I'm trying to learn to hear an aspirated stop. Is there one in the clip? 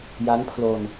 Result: yes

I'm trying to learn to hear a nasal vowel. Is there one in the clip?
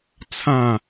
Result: yes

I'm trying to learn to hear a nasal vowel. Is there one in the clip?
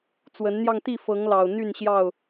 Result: no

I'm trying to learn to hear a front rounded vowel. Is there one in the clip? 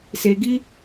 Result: no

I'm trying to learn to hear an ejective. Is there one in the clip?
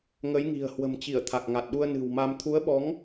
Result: no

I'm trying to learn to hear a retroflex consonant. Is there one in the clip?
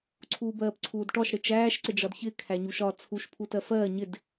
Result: yes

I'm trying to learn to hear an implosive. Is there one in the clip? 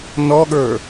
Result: yes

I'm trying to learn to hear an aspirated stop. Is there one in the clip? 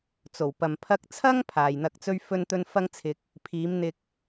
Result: yes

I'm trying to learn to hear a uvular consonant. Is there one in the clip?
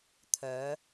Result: no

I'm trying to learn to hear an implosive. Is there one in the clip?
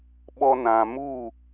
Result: yes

